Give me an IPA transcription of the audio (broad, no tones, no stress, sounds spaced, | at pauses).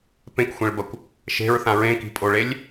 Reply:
p ẽ k xʷ ẽ ɭ b ɐ kʷ | ʃ e̤ ɹ θ ã ɹ ẽ k i̤ pʼ o ɭ e lʲ